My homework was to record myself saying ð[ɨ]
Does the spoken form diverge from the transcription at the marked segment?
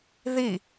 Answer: yes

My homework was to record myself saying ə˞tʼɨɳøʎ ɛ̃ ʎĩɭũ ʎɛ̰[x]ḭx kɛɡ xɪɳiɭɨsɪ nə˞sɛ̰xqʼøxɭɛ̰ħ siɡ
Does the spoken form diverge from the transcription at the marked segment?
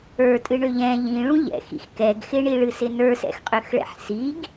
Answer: no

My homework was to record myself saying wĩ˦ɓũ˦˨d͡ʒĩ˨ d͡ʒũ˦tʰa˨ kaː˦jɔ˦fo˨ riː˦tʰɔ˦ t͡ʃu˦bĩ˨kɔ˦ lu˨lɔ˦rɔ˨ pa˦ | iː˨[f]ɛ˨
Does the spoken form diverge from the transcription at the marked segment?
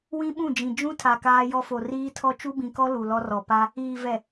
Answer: yes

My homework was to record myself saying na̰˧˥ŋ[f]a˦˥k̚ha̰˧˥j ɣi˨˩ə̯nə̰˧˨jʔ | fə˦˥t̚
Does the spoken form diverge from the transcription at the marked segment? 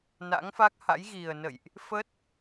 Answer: no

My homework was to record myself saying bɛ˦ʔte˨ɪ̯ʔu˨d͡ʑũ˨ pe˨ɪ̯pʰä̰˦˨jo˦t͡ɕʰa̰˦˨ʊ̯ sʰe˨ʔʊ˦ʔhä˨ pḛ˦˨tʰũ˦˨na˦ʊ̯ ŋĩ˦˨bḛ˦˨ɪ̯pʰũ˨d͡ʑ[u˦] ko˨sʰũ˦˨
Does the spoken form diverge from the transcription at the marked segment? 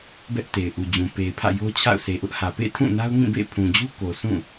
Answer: no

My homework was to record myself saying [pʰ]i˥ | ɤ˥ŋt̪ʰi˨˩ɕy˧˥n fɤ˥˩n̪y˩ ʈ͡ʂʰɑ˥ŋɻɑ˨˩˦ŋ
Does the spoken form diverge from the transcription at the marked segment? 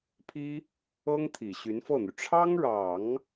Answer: no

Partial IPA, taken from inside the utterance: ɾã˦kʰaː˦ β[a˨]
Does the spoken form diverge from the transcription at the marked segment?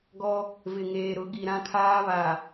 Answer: no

